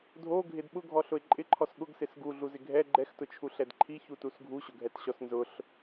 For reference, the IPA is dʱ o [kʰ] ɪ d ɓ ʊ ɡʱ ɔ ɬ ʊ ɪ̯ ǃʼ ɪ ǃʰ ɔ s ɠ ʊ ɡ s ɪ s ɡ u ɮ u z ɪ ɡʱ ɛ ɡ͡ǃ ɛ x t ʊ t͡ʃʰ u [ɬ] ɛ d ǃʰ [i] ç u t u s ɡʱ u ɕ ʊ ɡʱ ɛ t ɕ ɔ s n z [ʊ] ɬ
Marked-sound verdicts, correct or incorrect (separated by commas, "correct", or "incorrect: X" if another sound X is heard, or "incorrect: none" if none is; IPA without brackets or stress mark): incorrect: ɡʱ, correct, correct, correct